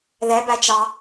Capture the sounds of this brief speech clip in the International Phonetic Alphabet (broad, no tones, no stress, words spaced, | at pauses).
ðɛbæ t͡ʃɑ